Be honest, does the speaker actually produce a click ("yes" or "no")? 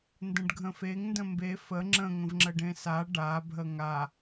yes